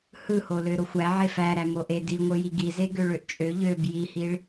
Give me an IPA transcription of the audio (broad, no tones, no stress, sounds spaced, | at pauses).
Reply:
h ɯ h o l ø ɾ o xʷ æ ʕ e f æ ɾ æ m o ʔ e d i ŋʷ ɯ j i ɡ i z e ɡ ø ɭ ø ʔ t͡ʃʼ ø ʎ ø b j i h i ɭ